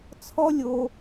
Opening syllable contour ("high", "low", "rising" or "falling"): high